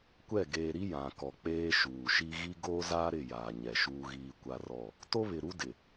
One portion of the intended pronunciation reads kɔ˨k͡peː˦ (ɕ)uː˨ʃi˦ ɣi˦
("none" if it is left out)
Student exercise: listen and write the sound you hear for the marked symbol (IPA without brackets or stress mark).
ʃ